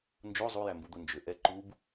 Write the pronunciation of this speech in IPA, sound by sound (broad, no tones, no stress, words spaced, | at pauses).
nd͡ʒo zˤujæmbud̪o nd͡ʒʏ ʔɛ ǃub